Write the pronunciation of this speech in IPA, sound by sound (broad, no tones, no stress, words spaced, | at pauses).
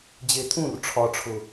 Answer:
d͡ʑet̪ʰũr ʈ͡ʂʰɒʈ͡ʂʰʊ